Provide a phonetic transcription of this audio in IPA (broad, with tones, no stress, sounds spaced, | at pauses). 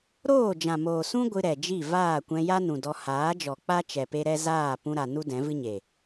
ɾ oː˦˨ d͡ʒ ã˨ m oː˨ s ũ˦ ɡʷ ɨ˧ ɾ ɛ˨ d͡ʒ i˦˨ v aː˦˨ kʷ ɛ̃˧ j a˦ n ũ˨ d ɔ˧ h aː˨˦ d͡ʒ ɔ˨ k͡p a˦ t͡ʃ ɛ˨ p e˧ ɾ ɛ˧ z aː˦˨ p ũ˧ ɾ a˨ n u˦ d ɛ̃˨˦ v ɨ˦ ɲ e˨